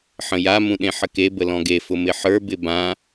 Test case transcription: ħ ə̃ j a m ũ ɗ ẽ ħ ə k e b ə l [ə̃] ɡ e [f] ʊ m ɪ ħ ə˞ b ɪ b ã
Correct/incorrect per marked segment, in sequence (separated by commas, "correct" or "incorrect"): incorrect, correct